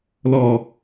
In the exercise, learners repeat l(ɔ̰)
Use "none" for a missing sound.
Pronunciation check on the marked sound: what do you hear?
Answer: ɔ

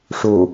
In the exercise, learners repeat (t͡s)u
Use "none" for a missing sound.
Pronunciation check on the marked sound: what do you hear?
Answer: ʂ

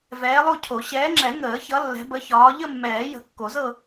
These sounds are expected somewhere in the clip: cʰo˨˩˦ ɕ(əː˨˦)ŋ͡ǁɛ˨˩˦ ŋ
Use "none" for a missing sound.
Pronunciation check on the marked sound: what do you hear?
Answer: ɛː˨˦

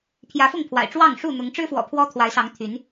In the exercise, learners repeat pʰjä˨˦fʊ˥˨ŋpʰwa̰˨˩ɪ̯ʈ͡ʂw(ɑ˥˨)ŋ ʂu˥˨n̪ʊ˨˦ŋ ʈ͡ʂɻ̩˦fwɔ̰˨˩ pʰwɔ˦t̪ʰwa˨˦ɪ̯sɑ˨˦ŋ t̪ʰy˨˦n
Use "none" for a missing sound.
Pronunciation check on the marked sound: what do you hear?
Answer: ɑ˥˨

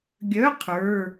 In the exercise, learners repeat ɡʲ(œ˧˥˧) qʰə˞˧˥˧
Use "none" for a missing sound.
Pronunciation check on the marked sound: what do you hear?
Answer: œ˧˥˧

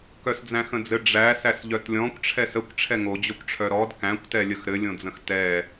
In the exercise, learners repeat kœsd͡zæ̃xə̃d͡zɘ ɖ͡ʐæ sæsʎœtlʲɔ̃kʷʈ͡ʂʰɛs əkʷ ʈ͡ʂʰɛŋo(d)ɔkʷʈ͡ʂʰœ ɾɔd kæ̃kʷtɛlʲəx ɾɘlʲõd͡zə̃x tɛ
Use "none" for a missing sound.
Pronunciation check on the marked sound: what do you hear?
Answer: d͡ʑ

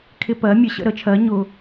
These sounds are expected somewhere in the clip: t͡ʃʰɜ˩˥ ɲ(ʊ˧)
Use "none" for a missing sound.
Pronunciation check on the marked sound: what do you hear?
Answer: ʊ˧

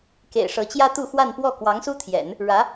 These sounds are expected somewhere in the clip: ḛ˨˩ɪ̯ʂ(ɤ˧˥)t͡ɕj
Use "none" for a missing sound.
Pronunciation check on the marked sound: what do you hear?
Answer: ɤ˧˥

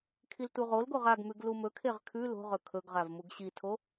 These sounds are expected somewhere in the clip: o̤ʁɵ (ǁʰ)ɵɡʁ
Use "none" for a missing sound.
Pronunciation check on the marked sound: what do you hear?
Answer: kʰ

